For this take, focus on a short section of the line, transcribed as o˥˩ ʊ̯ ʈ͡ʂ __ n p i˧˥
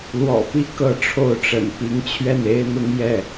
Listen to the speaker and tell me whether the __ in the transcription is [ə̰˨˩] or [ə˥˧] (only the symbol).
ə̰˨˩